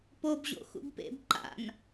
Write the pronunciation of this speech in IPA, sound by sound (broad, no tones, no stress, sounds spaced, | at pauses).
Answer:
p o b ʑ o̰ x ṵ b p ḛ b ǃ a̰ n